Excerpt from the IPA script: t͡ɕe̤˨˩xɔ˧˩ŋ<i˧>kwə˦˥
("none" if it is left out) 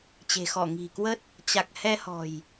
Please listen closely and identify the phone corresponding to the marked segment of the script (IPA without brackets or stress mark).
i̤˨˩